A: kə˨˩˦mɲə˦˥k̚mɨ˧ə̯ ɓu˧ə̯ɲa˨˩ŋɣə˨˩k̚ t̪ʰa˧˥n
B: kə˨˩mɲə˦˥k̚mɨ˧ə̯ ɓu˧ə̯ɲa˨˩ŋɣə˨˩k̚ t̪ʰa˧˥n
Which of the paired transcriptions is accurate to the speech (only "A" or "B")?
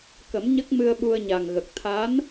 A